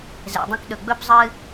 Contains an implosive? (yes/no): yes